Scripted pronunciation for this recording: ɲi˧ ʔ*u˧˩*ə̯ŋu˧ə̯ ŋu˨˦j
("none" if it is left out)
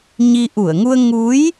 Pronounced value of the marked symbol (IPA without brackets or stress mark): u˧˩